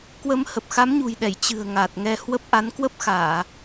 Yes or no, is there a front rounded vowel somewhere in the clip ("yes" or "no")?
no